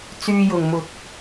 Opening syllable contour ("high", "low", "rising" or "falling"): high